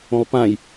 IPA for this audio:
õlˠpãj

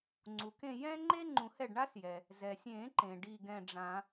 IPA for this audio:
ŋ͡ǀu˩kẽ˦˨ jɛ̃˥ŋ͡ǃe˥ ŋ͡ǃũ˨˩˦hɛ˦˨ɖɳa˥s jɛ˩ | zɛ˩sʲẽ˨˩˦ǃẽ˩ ɖi˦˨ɡɛ̃˦˨ɖ͡ʐã˨˩˦

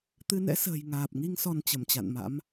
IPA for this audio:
t̪ɨ˧nɛ̰˧˥sə̤ː˨˩j ŋaː˨˩p̚ŋi˧ŋ sɔ˧nt͡ɕə˧˩mt͡ɕa̰˧˨nma̰˧˥m

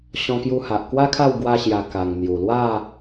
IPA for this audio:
ɕɔ̃˧kju˧ha˨ʔ kwa˦kʰa˥˧w ɡwa˧ɕja˨˩ ka˨˩ŋn̪ju˨˩lwa˥˧

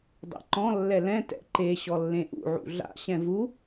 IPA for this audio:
dˤḛǃɔ̃ lːɛlɛ̃ tɛ̰ǃe ɕɔlːẽʔṵ ʕṵɮa̰ ɕɛ̃vu

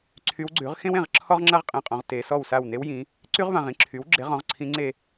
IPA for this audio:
ǀʰy˧˥wɡ͡ǀʉ˩˥ʁ xẽ˥wẽ˥˨ʁ ǁʰɔ˥ʁŋ͡ǁa˥ʁqʼẽ˨˩qʼɔ̃˩˧ʁ te˩˧sɔ˥˨wsa˥˨w ne˧˥wjĩ˩˧ | ǀy˥ʁvã˨˩ʁĩ˧˥ ǁʰy˩˥wɡ͡ǁe˩˥ʁɔ̃˩˧ʁ ǀʰĩ˧˥ŋ͡ǀe˥˨

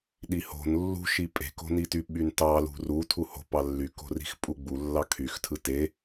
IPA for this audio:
ɗiho̤n lːṳʃi pʼe̤ko̤nity ɓyntɑlṳ ru tʰuho̤pɑ lːyk o̤ri̤xpʼuɡ͡bu lːɑkʰyxtʰɯ te

